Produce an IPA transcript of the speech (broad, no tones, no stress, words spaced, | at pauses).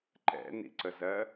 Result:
ǃɛ̰nḭǀəzɜ